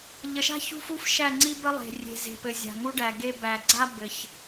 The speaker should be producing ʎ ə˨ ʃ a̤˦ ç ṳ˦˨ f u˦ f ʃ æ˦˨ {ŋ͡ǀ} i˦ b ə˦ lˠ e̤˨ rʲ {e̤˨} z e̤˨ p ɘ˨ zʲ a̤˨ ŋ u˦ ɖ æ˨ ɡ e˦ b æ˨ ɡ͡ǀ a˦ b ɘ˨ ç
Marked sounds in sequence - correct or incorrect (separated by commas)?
correct, correct